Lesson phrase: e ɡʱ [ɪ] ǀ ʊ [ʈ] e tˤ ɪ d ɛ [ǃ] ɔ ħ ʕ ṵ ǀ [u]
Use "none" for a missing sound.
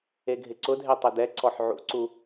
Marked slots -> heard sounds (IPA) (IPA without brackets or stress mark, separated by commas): ɪ, dʱ, ǀ, u